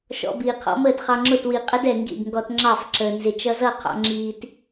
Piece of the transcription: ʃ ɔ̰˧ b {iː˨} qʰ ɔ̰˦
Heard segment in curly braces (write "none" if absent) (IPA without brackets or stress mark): iː˨